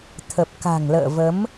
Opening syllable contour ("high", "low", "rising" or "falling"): low